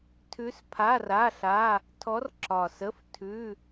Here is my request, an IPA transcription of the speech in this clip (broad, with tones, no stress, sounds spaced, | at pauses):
tʰ ʉ˧˥ s pʰ a˧˥˧ r a˧˥˧ ɬ a˧˥˧ | tʰ ɔ˧˥ r ǁ ɒ˨˩ s ə˧˥˧ f tʰ ʉ˧˥˧